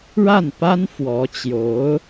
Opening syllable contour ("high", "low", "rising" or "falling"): falling